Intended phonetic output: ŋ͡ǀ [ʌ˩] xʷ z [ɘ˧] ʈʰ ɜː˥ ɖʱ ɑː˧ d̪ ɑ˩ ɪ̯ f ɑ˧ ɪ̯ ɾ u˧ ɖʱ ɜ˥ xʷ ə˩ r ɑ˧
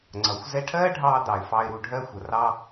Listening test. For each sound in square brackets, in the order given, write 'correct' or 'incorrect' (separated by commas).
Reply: correct, incorrect